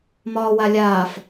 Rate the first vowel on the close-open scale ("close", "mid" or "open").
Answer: open